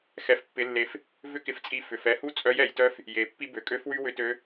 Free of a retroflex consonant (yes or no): yes